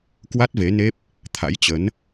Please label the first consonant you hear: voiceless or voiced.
voiceless